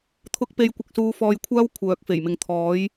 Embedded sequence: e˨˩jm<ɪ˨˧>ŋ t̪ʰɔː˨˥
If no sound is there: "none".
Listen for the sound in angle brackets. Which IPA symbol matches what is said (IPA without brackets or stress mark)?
ɪ˨˧